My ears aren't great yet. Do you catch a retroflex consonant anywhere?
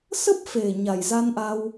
no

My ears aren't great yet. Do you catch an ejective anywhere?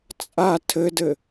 yes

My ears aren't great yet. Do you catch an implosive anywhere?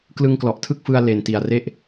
no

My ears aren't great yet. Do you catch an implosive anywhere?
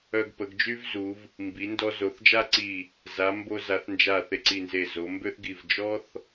no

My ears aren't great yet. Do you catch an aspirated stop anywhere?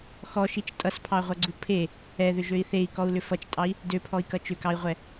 yes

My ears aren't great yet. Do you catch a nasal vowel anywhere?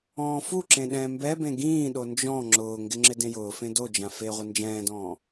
yes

